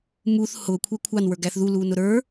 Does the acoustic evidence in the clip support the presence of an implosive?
no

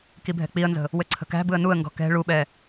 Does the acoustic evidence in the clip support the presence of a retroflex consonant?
yes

